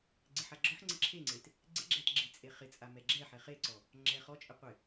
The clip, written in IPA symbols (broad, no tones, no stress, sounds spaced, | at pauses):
ɡ͡ǀ ɪ ħ a ɡ͡ǁ ɔ ħ ŋ͡ǀ ɪ ǁʰ e ŋ͡ǀ e t | ɡ͡ǀ ɪ ɡ͡ǁ ɛ t ɡ͡ǁ ɪ t͡sʼ e χ ɪ t͡sʼ a m ɛ ɡ͡ǁ ɛ ħ ɛ χ e ǀ ɔ | ŋ͡ǁ ɛ χ ɔ t͡ʃʼ ɪ qʷ ɪ